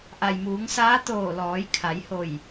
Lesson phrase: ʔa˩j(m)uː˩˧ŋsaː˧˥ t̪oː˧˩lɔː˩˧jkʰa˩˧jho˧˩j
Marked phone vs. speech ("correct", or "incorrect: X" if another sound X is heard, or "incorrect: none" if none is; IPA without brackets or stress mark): correct